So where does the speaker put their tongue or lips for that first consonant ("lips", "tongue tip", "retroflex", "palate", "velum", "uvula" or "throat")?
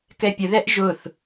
velum